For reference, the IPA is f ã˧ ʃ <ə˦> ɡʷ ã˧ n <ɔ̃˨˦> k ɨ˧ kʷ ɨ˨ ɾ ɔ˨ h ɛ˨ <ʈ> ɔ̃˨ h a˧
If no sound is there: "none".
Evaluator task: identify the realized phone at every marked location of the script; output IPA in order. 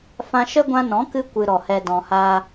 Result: ə˦, ɔ̃˨˦, d

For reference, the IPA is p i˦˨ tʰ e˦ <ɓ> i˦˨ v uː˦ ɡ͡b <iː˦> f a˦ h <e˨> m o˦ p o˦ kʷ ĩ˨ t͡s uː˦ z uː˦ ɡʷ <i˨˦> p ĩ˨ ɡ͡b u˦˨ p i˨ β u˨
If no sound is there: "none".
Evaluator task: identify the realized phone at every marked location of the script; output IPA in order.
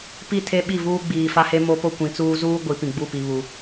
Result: ɓ, iː˨, e˦, i˨˦

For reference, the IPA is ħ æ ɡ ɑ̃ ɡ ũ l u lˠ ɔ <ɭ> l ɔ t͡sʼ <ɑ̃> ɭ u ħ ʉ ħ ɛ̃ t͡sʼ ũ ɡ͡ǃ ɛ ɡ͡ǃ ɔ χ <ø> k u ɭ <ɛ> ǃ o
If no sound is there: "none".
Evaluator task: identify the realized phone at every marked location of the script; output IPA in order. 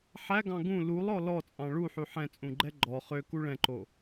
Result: none, ɑ̃, ø, ɛ̃

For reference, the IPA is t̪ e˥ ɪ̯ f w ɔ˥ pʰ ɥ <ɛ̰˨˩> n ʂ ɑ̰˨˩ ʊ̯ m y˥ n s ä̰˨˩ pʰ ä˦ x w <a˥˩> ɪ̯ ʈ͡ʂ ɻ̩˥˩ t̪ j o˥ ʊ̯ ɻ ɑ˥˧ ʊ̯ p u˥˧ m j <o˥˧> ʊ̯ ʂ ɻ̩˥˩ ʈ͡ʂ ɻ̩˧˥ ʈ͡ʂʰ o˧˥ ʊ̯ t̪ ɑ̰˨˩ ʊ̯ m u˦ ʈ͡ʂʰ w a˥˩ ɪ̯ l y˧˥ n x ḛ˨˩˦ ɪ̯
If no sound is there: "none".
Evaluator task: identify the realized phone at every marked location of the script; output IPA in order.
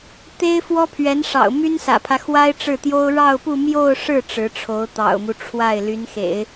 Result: ɛ˧˥, a˥, o˥˧

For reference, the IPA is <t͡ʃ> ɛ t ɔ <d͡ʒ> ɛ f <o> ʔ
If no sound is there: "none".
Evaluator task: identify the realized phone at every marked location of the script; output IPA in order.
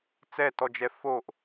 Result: t͡s, d͡ʒ, o

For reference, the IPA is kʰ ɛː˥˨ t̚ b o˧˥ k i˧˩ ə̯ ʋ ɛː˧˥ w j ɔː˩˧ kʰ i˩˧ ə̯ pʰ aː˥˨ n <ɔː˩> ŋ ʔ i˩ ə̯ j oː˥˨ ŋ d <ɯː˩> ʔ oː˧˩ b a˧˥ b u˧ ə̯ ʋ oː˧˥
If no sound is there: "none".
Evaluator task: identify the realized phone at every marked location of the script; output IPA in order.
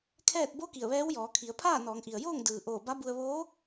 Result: ɔː˩˧, ɯː˩

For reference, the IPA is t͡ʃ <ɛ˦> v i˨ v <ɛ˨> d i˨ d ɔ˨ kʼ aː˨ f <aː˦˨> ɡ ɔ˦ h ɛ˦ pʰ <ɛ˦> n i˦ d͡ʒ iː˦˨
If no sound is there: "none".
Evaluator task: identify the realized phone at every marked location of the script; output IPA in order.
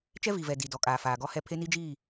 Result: ɛ˦, ɛ˨, aː˨, e˦

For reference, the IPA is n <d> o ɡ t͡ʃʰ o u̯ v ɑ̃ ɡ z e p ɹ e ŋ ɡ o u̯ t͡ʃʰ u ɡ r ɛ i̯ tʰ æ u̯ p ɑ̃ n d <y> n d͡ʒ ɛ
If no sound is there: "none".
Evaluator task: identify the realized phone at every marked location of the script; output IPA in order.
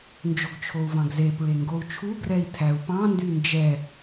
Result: d͡ʒ, y

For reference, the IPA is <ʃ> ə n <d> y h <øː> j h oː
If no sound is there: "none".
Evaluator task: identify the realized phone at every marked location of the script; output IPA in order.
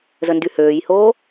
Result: z, d, øː

